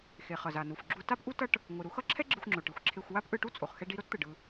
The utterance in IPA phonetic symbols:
x e˩ χ ʌ˩ z a˩ n u˩ f ɡ͡ǁ u˧ t a˥ p ʔ u˥ t ʌ˥ ʈ | ŋʷ ɯ˩ ɾ u˧ x ʌ˥ ǁʰ ɛ˥ ɡ͡ǁ ɯ˧ xʷ ŋ͡ǁ o˩ ʈ i˩ xʷ ǁʰ e˧ xʷ w a˥ p ʔ ɯ˧ ʈ u˥ t͡sʼ o˩ χ x ɛ˧ ɖ i˧ ɾ o˥ t t̪ ɯ˩ ɖ ɯ˧

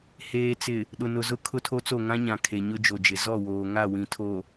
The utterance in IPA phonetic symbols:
h eː˨ t͡s ɪ˨ | ɗ ʊ˨ n ʊ˨ z ʊ˦ kʰ ʊ˦ tʰ o˦ t͡s o˦˨ ŋ ã˦ ɲ ã˨ kʰ e˨ ɲ ʊ˦ d͡ʒ o˨ d͡ʒ ɪ˨ z ɔ˦˨ w oː˨ ŋ a˦˨ w ĩ˨ tʰ o˨

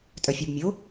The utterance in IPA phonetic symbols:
tʼ œ fʲ æ b mʲ o

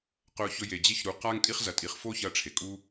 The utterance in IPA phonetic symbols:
q ɵ˧ ʊ̯ ç ɵ˧ j e˨ d͡ʑ e˧ ç ɾ u˨ q a˧ ŋ tʼ i˧ χ z ɐ˨ tʼ i˨ χ f o˦ ç ɐ˧ ʈ͡ʂʰ e˨ kʼ u˦

